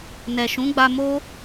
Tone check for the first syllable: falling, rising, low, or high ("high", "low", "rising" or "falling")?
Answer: low